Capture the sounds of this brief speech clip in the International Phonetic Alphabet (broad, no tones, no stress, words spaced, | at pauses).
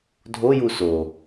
dʱoju so